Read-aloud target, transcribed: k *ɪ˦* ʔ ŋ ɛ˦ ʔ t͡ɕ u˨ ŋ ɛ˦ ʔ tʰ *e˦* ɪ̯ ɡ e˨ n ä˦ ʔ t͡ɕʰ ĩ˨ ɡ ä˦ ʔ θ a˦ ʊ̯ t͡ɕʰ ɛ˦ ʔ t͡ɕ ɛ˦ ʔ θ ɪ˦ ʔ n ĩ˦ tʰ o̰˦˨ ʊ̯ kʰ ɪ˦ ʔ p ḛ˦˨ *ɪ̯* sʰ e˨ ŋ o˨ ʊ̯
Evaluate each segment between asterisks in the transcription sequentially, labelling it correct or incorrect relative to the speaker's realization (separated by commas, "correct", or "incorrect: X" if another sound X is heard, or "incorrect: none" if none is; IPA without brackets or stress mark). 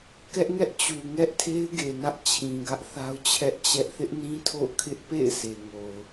incorrect: ɛ˦, correct, correct